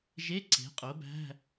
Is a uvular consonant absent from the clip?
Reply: no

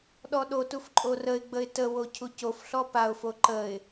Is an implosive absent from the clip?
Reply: no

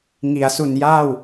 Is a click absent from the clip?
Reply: yes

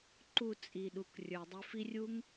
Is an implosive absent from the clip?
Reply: no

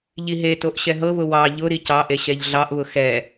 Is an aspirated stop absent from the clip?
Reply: yes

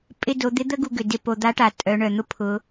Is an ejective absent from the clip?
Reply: no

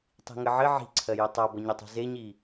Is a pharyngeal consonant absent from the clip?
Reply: no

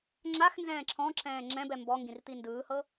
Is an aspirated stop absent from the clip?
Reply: no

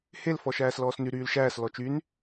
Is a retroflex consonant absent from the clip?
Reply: yes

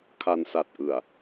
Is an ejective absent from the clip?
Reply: yes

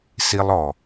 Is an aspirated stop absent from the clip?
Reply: yes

